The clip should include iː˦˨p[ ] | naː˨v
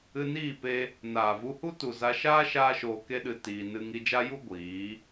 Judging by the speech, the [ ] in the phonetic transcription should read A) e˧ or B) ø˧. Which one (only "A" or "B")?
A